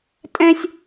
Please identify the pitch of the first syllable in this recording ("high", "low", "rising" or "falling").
high